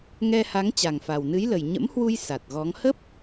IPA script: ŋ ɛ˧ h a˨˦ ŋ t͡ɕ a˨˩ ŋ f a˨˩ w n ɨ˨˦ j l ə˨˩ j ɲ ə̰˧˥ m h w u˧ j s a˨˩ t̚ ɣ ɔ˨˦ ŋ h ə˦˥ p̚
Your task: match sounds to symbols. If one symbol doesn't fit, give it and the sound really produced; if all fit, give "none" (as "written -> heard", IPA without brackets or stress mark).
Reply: none